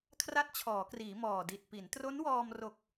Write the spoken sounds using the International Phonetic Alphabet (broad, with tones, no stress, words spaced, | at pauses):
kʰra˥˩t̚t͡ɕʰɔː˩˦kriː˩˦ mɔː˨˩di˨˩t̚ pi˩˦n tro˦˥nwɔː˧m ro˨˩k̚